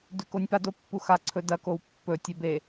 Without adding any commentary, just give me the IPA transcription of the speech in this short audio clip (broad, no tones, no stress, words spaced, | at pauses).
dʉkonʲpa dopːuxa ǀʰɵdɐ kowpːɵ tʲɵ be